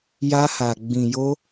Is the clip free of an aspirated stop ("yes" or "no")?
yes